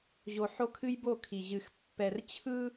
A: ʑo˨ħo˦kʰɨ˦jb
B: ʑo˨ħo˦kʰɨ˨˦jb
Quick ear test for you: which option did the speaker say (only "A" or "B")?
A